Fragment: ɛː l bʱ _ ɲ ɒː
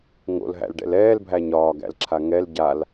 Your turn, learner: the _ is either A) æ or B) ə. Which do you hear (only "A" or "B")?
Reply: A